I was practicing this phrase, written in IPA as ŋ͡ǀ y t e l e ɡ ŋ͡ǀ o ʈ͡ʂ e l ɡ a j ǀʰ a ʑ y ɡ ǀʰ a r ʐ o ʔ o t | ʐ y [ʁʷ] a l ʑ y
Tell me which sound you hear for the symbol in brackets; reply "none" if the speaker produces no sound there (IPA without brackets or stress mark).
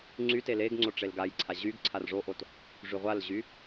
ʁʷ